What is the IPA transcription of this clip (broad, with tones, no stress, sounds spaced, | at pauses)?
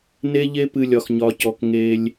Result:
n e˦ ʎ e˦ p ɨ˨ lʲ ɒ˩ x ɲ ɒ˩ c ɔ˩ k ŋ e˨ lʲ